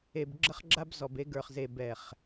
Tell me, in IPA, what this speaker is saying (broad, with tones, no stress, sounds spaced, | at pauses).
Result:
e˨ b ɡ͡ǁ ə˦ χ ɡ͡ǁ a˦ b z ɔ˨ b e˦ ɡ ə˞˨ χ z e˨ b ɛ˨ χ